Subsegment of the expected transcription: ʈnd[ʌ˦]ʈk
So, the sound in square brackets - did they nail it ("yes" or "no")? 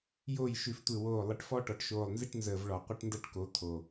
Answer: yes